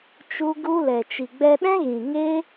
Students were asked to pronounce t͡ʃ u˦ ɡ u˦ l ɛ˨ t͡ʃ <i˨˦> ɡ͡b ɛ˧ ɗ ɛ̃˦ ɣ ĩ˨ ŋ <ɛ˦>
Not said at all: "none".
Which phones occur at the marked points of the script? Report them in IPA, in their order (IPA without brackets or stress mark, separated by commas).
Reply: i˨, e˦